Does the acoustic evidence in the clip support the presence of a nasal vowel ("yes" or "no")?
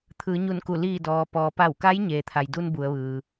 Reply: no